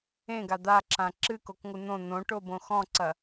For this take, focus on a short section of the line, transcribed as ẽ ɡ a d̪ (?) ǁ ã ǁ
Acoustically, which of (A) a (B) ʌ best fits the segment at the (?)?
A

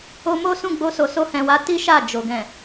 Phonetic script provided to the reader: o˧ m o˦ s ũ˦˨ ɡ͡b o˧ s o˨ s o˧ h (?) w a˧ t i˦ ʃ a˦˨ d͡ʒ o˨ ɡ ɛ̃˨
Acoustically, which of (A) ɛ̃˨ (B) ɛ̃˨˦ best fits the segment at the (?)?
A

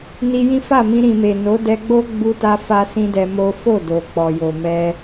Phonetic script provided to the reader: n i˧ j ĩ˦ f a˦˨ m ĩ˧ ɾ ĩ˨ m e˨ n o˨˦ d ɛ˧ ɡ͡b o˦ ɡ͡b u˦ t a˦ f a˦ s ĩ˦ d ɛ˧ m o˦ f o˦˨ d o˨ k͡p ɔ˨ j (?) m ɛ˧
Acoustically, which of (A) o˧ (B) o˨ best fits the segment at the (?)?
B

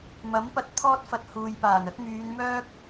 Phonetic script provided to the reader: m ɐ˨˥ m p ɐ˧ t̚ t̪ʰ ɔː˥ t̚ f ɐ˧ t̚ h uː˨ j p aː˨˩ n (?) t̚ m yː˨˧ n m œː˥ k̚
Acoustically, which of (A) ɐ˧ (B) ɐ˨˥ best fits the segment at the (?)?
B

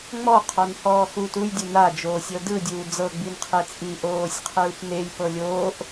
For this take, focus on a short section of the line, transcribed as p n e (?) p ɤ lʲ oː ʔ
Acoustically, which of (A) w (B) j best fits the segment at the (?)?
B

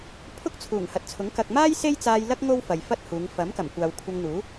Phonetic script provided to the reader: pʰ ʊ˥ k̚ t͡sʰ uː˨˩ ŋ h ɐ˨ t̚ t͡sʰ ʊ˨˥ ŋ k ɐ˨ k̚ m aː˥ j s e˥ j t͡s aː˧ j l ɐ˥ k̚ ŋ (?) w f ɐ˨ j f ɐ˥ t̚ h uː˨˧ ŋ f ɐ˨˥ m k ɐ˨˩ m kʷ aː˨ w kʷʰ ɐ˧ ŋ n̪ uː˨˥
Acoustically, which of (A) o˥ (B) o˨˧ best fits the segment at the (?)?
A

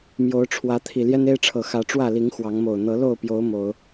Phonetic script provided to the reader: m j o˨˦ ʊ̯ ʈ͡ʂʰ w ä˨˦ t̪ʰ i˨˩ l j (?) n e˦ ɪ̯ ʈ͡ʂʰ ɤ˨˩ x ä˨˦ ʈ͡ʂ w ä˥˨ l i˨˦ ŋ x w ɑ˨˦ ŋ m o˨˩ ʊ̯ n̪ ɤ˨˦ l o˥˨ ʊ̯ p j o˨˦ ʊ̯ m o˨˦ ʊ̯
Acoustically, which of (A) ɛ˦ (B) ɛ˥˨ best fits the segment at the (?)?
A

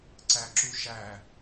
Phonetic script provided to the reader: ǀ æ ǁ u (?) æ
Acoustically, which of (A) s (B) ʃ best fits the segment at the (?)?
B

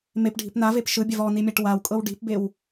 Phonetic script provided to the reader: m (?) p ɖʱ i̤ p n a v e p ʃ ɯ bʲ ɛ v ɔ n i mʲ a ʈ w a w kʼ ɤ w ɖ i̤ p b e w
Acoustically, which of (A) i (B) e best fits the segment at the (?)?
B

